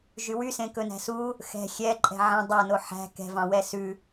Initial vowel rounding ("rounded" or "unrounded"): rounded